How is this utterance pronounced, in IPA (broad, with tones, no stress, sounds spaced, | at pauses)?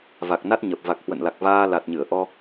v a˨˩ k̚ n a˦˥ t̚ ɲ ə˨˩ p̚ v a˨˩ k̚ h w ə̰˧˨ n l a˨˩ k̚ v aː˧ l a˨˩ t̚ ɲ ɨ˧˩ ə̯ ʔ ɔ˧